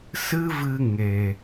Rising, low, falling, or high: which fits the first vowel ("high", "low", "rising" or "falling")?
high